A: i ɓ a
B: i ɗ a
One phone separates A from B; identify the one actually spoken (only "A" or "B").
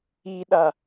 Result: B